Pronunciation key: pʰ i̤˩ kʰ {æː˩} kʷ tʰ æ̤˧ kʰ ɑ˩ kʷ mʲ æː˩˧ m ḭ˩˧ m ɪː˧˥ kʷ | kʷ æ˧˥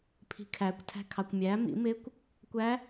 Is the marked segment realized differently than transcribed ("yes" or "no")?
no